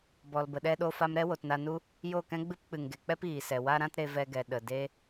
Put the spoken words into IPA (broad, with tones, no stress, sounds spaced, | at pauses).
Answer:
b ɔ˨ l b ə˨ ɗ ɛ˧ ɗ o˧ f a˧ m ɾ ɛ˦ w o˨ t n a˧ n u˦ | j o˦˨ k ɛ̃˦ ɡ͡b ɨ˦ p k͡p ɨ˨ ŋ ɡ e˨ k͡p ɛ˦ p iː˨ s ɛ˨ w a˦ ɾ ã˦ t ɾ e˧ v ɛ˧ ɡ ɛ˨ ɗ ə˨ d e˦